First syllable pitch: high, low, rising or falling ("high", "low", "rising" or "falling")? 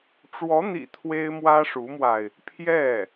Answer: rising